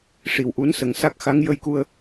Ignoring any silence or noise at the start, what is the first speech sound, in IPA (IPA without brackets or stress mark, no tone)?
ʂ